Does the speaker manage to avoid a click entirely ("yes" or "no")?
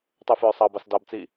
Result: yes